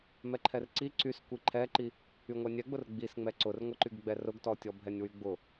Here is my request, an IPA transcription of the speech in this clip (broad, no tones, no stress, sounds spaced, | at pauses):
m ɛ ǃʰ ɛ r ǀ i ǀ y s kʷ i ǃʰ ɛ ǃ i | y ŋʷ ɛ nʲ ɛ ɡ͡b ʊ r ɡ͡b i s ŋ͡m ɛ ǀ ʊ r ŋʷ ɛ ǃ y ɡ ɡ͡b ɛ r ʊ ɡ t ɔ tʲ ɔ bʱ ɛ nʲ w y ɡ͡b ʊ